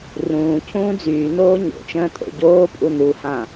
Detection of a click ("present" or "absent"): absent